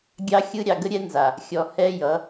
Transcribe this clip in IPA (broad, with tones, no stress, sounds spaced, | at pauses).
ɡʲ ɑ˦ xʲ ɯ˦ ɾʲ ɑ˨ ɡ ə˦ ɾʲ ɛ˦ n z a˨ | xʲ ɔ˨ h ɛ˦ j ʌ˨˦